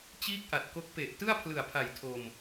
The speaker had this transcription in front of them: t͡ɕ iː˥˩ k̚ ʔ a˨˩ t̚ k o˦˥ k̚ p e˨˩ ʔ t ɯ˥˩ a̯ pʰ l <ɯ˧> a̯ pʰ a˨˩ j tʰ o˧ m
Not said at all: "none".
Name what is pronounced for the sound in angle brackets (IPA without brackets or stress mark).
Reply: ɯ˨˩